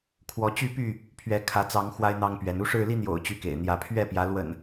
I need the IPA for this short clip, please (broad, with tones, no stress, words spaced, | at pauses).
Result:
kʰwɔ˨˦ t͡ɕy˥˨py˥˨ | pʰɥɛ˨˦kʰä˨˦t͡sɑ˨˦ŋ xwa˦ɪ̯n̪ɑ˦ŋpɥɛ˨˦n u˥˨ʂɻ̩˥˨li˦n̪jo̰˨˩ʊ̯ t͡ɕy˥˨kḛ˨˩ɪ̯ n̪jä˨˦pʰɥɛ˥˨pjä˨˦ lwə̰˨˩n